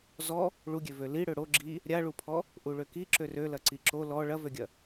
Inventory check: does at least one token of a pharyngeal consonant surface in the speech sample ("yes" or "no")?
no